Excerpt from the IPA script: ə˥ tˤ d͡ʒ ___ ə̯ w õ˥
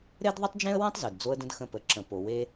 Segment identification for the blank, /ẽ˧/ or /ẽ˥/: ẽ˥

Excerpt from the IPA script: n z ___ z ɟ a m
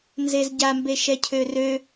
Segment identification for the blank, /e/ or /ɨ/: e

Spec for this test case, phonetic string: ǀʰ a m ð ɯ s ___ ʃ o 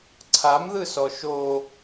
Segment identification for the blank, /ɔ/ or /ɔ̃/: ɔ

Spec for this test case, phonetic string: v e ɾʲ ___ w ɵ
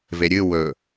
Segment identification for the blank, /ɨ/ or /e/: ɨ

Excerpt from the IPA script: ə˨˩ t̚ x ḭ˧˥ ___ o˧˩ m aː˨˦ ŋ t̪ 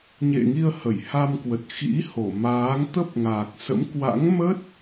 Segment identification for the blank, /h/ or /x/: h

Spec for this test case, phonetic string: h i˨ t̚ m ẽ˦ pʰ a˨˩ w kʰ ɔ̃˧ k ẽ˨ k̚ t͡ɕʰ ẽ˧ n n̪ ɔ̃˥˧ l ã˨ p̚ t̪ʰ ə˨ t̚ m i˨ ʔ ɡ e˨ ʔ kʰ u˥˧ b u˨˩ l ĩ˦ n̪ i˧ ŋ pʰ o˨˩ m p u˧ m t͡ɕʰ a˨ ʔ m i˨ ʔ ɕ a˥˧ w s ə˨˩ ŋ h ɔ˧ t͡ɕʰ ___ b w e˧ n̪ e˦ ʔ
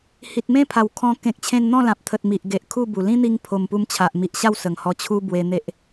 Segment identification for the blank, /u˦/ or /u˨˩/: u˦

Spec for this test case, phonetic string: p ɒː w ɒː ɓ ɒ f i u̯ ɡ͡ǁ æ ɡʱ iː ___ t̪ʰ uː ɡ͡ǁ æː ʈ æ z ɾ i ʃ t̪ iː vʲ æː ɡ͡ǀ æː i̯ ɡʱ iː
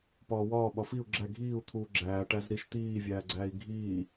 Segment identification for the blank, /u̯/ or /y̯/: u̯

